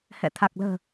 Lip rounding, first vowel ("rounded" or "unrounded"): unrounded